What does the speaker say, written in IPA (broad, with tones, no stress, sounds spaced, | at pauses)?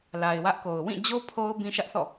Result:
l a˨ ɪ̯ w ä˦ ʔ k o˨ ʊ̯ w ĩ˦˨ d͡ʑ o˦ pʰ o˦ ʊ̯ b ĩ˦ ʃ ä˦ ʔ θ ɔ̰˦˨